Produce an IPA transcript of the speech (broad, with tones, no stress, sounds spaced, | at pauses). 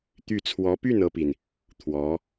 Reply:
t̪ y˥˩ t͡sʰ w ɔ˧˥ p y˥˩ n ɤ˥ p i˨ n | t̪ʰ w ɔ˧˥